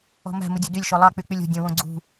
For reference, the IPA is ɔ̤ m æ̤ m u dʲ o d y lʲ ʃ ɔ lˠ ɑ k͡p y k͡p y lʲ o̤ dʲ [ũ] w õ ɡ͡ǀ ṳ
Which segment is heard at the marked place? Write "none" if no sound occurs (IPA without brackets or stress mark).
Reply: õ